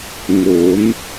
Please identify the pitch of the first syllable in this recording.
rising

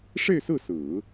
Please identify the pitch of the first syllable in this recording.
falling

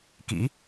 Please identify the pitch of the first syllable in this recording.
rising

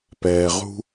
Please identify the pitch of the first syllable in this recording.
low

